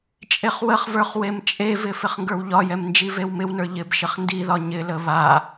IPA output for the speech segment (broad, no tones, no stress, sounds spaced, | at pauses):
t͡ʃʼ e χ w ə χ v ə˞ χ w e m t͡ʃʼ e v ɪ f ɪ χ ŋ ɡ ə˞ w ʎ ɒ j ɛ m n d͡ʒ i v e w m ɪ w n ə˞ ʎ ɪ b ʃ ɪ χ n d i ð ɒ ɲ ɪ l ə β a